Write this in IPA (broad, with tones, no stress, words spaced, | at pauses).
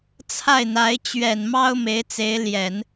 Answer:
t͡sʰa˥˩ɪ̯n̪a˧˥ɪ̯ t͡ɕɥɛ˨˩nmɑ˥ʊ̯ me˧˥ɪ̯t͡se˧˥ɪ̯ljɛ˨˩˦n